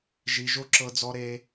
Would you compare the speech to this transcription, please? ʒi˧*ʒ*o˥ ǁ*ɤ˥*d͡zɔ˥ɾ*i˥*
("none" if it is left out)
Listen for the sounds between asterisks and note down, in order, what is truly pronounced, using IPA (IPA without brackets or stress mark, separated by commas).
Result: ʒ, ɤ˥, e˥